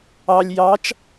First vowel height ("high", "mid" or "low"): low